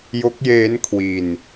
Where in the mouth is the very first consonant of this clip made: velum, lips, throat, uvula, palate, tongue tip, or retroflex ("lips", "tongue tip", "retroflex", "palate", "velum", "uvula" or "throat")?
palate